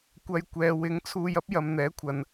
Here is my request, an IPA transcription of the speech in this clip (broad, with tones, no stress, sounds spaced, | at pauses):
kʷ ɐ˧ j kʷ ɛː˨ w ɪ˨˥ ŋ t͡sʰ uː˧ j ɐ˥ p̚ j ɐ˨ m n̪ ɛː˨˥ kʷʰ ɐ˨ n